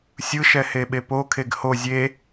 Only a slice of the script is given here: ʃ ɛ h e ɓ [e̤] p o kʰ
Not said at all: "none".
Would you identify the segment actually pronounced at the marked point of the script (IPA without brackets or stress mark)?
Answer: e